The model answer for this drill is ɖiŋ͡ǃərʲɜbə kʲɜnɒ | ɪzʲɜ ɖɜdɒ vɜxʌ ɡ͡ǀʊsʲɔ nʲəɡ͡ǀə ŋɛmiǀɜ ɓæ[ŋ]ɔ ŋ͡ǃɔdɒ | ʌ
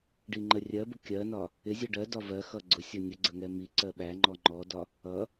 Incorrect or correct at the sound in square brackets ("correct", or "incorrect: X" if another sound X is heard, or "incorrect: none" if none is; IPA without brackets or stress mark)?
incorrect: ŋ͡ǃ